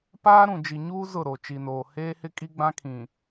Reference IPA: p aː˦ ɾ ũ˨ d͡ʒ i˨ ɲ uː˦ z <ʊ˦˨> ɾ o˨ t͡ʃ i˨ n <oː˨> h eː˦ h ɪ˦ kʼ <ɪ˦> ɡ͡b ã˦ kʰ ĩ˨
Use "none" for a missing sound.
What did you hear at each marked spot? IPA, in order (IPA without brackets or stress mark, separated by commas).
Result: ʊ˦˨, oː˨, i˦